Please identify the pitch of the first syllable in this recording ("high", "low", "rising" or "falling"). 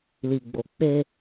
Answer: low